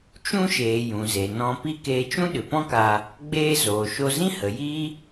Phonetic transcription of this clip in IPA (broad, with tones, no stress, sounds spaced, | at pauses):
t͡ʃ ũ˦ ʃ eː˨ j ũ˨ z e˨ n ɔ̃˧ p i˦ k eː˧ t͡ʃ ũ˦ ɗ ɨ˨ p ɔ̃˦ k a˧ | ɡ͡b eː˦ z oː˨ ʃ o˧ z ĩ˦ h ə˨ j i˦